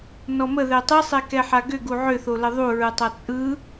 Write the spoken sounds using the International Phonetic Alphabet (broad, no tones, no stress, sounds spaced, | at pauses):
n ɔ m ə ð ɛ tˤ ɯ sˤ ɛ k ɛ ħ a ɡ ʏ ɡ u ʕ ʏ θ o l ə ðˤ u ɹ ɯ tˤ a t͡sʼ ɯ